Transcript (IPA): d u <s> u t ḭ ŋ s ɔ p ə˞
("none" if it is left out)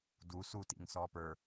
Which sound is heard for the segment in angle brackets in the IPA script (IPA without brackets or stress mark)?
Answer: s